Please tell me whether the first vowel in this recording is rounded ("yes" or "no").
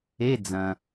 no